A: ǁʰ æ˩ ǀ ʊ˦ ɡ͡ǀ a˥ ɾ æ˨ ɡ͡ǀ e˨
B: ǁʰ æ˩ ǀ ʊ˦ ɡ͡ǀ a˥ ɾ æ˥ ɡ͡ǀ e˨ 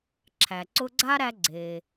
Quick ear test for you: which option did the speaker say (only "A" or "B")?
B